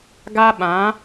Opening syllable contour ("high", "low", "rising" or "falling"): high